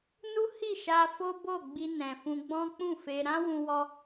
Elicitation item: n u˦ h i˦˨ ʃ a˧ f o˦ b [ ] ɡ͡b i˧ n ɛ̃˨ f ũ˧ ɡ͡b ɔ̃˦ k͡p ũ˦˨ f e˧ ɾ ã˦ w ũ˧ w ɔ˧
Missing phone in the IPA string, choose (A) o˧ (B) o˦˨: B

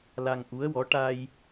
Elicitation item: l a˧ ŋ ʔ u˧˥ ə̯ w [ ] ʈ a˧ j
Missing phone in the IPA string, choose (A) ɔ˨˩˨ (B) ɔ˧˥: B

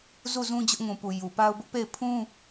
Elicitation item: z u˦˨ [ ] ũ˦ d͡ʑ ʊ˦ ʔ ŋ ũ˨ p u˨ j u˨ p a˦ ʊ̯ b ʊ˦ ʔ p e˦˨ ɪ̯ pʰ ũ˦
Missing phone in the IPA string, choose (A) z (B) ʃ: A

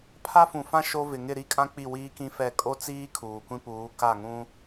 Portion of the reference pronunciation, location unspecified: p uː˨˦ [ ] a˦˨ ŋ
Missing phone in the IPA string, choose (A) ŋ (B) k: B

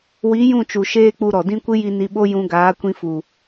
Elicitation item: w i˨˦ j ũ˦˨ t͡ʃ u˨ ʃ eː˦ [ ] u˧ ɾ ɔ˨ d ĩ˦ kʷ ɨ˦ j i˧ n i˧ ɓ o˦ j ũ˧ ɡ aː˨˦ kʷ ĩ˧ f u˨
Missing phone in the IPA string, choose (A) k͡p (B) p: A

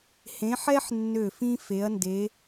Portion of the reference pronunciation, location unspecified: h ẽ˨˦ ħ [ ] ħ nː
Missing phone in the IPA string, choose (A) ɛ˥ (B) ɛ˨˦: A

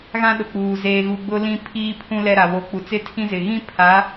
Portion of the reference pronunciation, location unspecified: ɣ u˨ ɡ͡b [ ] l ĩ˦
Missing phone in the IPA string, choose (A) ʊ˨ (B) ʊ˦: B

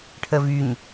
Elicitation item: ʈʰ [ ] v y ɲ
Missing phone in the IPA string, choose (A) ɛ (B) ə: B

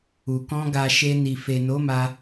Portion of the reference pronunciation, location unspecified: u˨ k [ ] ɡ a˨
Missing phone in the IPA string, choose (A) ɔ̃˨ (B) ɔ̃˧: B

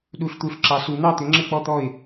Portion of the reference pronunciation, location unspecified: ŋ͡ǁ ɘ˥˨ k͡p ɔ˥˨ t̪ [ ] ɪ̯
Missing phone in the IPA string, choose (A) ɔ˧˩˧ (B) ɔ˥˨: B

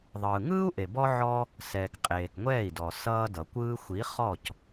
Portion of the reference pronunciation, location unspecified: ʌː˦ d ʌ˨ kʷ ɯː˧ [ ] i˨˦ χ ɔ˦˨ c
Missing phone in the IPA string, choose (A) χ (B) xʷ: B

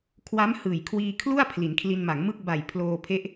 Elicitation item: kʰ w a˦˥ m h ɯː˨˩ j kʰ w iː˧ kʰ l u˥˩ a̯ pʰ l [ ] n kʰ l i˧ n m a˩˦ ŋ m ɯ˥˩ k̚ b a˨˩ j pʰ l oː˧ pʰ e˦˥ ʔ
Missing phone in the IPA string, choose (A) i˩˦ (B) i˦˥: A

